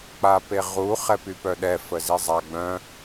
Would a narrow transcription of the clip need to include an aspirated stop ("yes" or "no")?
no